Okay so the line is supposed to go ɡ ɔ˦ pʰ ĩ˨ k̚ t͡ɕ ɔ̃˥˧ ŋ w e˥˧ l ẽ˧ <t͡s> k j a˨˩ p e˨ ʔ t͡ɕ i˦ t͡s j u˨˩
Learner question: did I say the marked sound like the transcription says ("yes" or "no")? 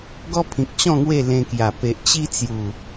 no